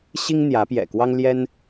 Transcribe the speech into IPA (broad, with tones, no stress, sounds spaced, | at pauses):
ɕ i˥ ŋ n̪ j ä˧˥ p j ɛ̰˨˩ k w ɑ˥ ŋ l j ɛ˥ n